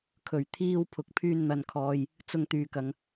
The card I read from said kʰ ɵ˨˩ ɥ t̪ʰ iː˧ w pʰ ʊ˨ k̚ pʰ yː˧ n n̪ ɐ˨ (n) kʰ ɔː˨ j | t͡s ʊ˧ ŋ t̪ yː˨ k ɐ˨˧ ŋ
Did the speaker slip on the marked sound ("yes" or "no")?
no